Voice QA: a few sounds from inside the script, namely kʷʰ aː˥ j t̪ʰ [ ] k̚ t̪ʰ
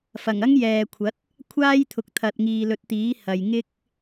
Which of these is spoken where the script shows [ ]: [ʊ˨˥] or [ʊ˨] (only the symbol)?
ʊ˨